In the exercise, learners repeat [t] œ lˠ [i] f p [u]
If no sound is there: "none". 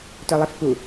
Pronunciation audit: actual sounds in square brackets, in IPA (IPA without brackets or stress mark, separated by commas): t, i, u